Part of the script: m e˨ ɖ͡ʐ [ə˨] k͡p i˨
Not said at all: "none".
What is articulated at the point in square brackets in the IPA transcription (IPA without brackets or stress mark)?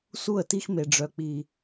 œ˨